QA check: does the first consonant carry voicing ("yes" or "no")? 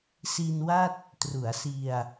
no